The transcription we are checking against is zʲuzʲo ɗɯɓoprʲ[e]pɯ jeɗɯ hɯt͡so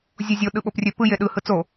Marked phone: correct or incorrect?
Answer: incorrect